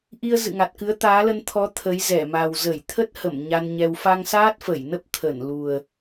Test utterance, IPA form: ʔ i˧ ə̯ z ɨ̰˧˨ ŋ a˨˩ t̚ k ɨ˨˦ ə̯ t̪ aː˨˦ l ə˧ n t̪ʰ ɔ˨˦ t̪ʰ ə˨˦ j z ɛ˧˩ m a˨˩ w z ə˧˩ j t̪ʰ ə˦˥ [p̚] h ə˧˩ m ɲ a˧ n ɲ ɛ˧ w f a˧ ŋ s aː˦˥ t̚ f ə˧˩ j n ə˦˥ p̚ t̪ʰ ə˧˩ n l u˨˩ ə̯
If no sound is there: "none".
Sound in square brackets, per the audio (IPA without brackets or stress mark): t̚